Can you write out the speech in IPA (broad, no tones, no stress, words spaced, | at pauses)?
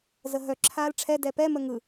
zəɦœ ǁʰaːlʈ͡ʂʰɛ dɛpɛ məŋɯ